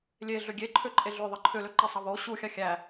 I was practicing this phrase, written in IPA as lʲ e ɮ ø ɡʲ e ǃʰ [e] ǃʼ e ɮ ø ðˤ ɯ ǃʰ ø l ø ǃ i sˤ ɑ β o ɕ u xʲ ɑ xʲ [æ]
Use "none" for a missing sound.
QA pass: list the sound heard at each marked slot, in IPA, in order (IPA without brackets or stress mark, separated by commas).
ø, æ